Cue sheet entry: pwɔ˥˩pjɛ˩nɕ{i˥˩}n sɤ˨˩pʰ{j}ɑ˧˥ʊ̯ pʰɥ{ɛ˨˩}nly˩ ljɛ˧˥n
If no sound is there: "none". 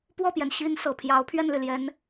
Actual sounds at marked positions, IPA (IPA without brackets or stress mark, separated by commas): i˧˥, j, ɛ˥˩